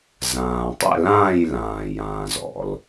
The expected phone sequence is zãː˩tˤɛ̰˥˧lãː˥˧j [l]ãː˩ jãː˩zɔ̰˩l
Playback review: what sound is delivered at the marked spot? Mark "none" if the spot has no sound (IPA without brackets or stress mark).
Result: l